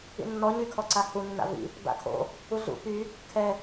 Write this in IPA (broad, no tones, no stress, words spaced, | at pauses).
ḭnːɔ ɲykʰɔǀahu nːa̰vḭ | ba̰kʰo̰ | uɮṵ py | kʰɛ